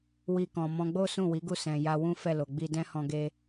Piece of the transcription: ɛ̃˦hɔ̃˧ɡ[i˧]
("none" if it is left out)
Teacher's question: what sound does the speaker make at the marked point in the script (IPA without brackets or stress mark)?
e˧